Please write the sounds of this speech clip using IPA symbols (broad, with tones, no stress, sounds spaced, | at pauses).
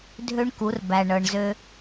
dʱ ø˦ ɳ k u˨˦ r b æ˨ ɳ ɤ˨ ɳ z ø˦